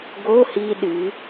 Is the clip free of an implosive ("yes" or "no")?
no